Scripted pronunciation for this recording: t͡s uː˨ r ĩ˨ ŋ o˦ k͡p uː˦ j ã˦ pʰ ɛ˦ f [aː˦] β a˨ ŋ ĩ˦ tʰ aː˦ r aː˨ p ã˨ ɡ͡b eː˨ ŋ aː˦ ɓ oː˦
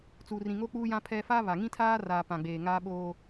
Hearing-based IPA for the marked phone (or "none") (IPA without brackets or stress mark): aː˦